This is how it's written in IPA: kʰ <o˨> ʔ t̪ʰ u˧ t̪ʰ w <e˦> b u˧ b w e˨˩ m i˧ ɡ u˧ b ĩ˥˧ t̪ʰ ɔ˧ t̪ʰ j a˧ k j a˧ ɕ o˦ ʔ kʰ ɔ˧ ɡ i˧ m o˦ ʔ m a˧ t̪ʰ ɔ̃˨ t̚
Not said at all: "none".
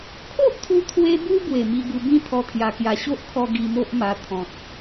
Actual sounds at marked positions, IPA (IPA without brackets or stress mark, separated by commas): o˦, e˧